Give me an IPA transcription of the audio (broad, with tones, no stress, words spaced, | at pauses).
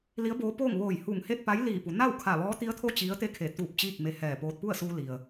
li˧˥ə̯boː˧˥poː˥˨ŋ ʋoː˧˩jhu˧˩ŋ he˥˨t̚pa˧˥j liː˧˩pu˩˧ na˥˨wkʰa˧˩ ʋɔː˧˥t̪i˧˥ə̯t̪ʰo˥˨ t͡ɕi˧˥ə̯t̪e˥˨kʰe˧˩ t̪u˧˩p̚ t͡ɕiː˥˨k̚me˧hɛː˧˩poː˧t̚ pu˥˨ə̯suː˧li˩ə̯